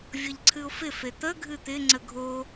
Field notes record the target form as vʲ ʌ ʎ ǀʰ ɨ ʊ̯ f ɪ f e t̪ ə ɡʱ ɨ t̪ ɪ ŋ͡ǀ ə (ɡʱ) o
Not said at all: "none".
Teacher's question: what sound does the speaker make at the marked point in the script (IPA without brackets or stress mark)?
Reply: ɡʱ